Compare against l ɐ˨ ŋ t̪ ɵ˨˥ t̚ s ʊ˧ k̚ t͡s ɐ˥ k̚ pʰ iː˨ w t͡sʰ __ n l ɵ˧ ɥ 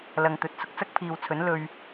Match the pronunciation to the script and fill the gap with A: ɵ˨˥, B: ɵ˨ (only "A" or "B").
A